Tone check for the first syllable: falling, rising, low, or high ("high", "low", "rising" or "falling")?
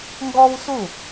high